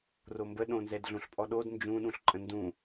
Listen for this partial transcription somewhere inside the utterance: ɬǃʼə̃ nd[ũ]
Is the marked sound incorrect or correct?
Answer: correct